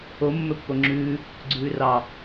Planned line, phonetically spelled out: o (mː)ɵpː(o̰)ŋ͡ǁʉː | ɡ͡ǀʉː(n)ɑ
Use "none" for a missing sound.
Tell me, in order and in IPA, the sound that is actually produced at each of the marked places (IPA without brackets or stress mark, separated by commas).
mː, o, r